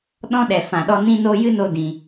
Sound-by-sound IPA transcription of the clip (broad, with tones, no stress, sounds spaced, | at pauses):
ɗ ɔ̃˦ ɗ ɛ˨ f ã˨ ɗ ɔ˧ n ĩ˦ n o˦ j ɨ˦ n o˦ d ĩ˧